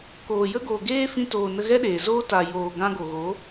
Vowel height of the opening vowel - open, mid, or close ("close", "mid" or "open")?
mid